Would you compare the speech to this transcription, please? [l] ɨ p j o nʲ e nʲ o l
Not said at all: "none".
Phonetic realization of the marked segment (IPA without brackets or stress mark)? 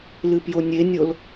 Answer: l